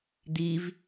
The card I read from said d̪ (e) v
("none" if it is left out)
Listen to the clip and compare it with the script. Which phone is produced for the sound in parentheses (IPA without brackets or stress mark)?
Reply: i